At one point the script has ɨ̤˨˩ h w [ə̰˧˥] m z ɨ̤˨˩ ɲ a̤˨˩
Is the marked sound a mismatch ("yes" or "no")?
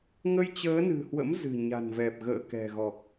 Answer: no